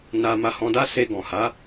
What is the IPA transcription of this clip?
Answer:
n a˧ m a˧ h ɔ̃˧ d a˦ s e˧ ɡ ɔ̃˨ h a˨˦

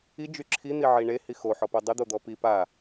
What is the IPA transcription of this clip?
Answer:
i d͡ʒ y ǁʰ i n̪ i ʕ i ɳ e h i x o ħ ɔ p o dˤ ɪ d̪ o d̪ ɔ p i p a

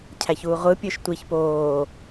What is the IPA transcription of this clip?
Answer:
cʰ æ ç uː ʁʷ ɯ pʲ ø ʃ tʷ i ç p oː

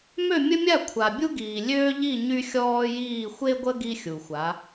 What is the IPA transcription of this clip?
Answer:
m ø˥˧ mʲ ə˥ mʲ a˥˧ kʷʰ a˨ bʲ u˥ ɡ iː˨ lʲ øː˥ ʎ i˥˧ ɲ y˥ xʲ ɔː˥ j iː˥˧ xʷ e˥ ɡʷ ə˥ ɡ i˥ xʲ u˨ xʷ a˨˦

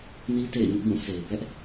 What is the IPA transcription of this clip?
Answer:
n i˦ t ḛ˦˨ ɪ̯ ɲ ʊ˦ ʔ b ũ˦˨ s e˨ ɪ̯ b ɛ˦ ʔ

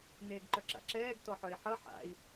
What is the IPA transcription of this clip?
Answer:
n eː ɡ ǃ œ ǁ a̰ ǁ ɛː ɡ t ɔ ħ œ i̯ ħ ʌ ħ a̰ i̯

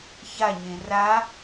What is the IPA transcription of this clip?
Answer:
ç a ɲ ẽ r a

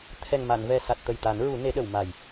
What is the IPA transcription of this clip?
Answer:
t̪ʰ ɛ˨˩ ŋ m a˨˩˨ n v ɛ˨˩ s a˨˩ t̚ t̪ ə˨˩ j t̪ a˨˩˦ n ɹ u˨˩˦ n e˨˩˦ ɗ ə˨˩˨ w m a˨˩ j

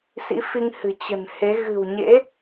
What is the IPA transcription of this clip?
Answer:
s ḭ˧˥ f i˧ ŋ h ɨ̤˨˩ t͡ɕ ə̤˨˩ n h e˨˦ ɣ ɨ̤˨˩ w ɲ ḛ˧˥

